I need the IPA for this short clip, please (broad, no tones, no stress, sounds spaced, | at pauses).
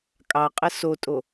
kʼ ɑ qʼ ə s o tʼ o